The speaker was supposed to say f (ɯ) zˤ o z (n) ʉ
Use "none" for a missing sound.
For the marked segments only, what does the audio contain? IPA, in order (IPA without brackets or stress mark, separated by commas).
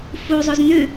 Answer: u, n